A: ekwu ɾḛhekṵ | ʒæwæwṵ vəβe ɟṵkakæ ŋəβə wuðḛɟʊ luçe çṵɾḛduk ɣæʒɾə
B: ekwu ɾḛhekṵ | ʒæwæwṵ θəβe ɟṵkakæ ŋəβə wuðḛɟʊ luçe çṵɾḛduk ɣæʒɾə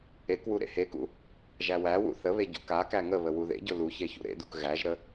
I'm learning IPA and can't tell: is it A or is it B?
B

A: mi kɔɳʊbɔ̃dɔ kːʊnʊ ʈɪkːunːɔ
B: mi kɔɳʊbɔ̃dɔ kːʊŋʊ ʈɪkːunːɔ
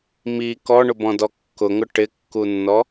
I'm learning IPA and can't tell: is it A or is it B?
B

